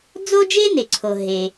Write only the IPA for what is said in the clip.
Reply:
d͡z o˥ d͡ʒ e˥ n e˩ ǀʰ o˩ ɦ e˩

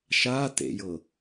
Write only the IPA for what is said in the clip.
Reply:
ʃ a t ḛ j ɤ

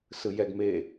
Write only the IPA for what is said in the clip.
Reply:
s ɯ j ɛ ɡ m e

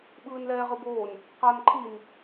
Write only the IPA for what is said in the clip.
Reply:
ɓ ɯː n l ɛː ʁ ɯ b oː n | q a n ǃʰ i n

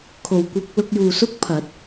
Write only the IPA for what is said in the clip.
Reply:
kʰ o˨˩ w kʷ ɐ˧ k̚ l ʊ˧ k̚ j uː˨ s ʊ˥ k̚ pʰ ɐ˨˥ t̚

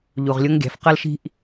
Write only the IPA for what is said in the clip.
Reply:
ʎ u˩ ʁ lʲ ʊ˧˥ ŋ ɡʲ æ̤˩˧ f q ʌ˥ l ʃ i̤˥ ʔ

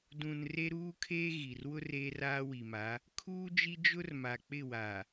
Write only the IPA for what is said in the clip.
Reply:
d ũ˨ n r e˦ ɾ uː˦ kʰ eː˦ ɣ i˨ r w ʊ˦ r eː˦ r aː˦ w i˨ m a˨˦ | kʰ uː˦ d͡ʒ i˦ d͡ʒ ʊ˦ r m a˨ k͡p ɪ˦˨ w a˨

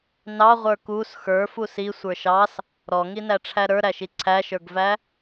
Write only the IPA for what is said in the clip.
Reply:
n ɑ ʁʷ ə˞ k u s x ə˞ f u s i sʷ ə˞ ʃ ɑ s | ɾ ɔ ŋ i n æ ʈ͡ʂʰ æ ɾ ə˞ ɾ æ ʃ i ǀʰ æ ʃ ə˞ ɡ v æ

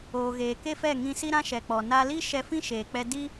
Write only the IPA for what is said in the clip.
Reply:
oː˨ ɣ eː˨ k e˦ f ɛ˦˨ ŋ ĩ˧ s i˦ ɾ ã˦ ʃ ɛ˨ k͡p ɔ˨ n a˧ l i˦ ʃ ɛ˧ f ĩ˦ ʃ eː˨ k͡p ɛ˧ d i˦

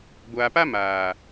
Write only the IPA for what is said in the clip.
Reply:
ɡʷ aː˨ p a˦ m aː˨

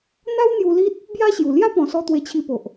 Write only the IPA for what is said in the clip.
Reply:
n̪ a˦ w n̪ j u˧ l i˦ t̚ | b j a˦ ɕ j u˨˩ l j a˦ p ɔ̃˨˩ s ɔ˧ t̪ w e˧ t͡ɕʰ i˧ p o˨ ʔ

